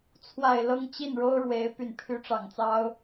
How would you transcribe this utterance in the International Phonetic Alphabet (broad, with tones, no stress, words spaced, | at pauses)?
t͡sʰwa˨˩ɪ̯ lɤ˥˧ŋt͡ɕi˥˩nɻo˥ʊ̯ɻwe˧˥ɪ̯ py˨˩npʰy˧˥ʈ͡ʂɑ˨˩ŋt͡sɑ˥ʊ̯